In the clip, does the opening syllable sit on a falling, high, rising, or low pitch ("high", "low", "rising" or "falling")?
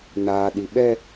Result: low